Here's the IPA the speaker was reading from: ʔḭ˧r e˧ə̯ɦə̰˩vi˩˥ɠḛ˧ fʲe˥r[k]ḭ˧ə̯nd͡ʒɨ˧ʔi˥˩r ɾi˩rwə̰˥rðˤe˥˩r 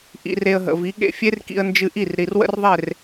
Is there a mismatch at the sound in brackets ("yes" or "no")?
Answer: no